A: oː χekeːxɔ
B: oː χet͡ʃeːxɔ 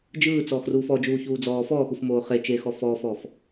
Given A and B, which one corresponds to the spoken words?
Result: B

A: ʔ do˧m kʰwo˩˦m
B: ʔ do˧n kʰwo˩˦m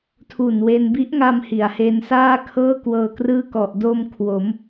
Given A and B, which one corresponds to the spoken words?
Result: A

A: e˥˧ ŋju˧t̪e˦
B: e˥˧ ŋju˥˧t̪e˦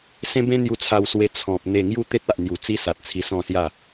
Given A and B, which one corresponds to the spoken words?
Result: B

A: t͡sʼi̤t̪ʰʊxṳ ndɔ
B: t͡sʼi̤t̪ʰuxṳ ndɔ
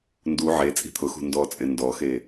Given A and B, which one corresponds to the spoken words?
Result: A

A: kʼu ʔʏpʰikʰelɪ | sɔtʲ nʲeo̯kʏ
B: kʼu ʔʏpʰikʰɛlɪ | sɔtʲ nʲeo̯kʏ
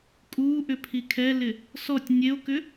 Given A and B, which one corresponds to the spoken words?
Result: B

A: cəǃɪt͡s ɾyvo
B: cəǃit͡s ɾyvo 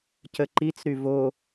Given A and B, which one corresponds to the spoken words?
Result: B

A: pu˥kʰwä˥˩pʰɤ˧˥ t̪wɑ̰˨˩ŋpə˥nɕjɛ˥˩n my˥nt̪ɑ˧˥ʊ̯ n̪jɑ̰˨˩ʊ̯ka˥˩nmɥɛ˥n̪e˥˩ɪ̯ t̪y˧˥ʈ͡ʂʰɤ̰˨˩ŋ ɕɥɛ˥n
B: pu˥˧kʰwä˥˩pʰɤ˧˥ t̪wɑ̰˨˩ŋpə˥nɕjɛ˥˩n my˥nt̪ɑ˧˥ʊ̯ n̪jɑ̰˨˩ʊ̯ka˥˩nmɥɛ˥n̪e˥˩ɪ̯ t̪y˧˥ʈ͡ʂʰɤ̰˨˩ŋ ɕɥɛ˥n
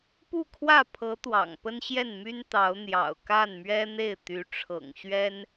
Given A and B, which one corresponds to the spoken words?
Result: B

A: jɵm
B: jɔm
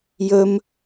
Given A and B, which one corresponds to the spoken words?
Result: A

